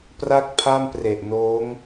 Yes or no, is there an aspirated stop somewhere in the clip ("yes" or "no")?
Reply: yes